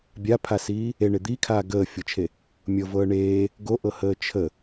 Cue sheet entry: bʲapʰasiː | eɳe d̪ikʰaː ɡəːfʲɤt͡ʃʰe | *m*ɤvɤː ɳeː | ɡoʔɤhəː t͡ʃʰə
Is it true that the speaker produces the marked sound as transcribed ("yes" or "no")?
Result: no